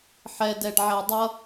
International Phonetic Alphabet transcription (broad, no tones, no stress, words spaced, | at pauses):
ħɛdɛɖʕɛ dˤʌ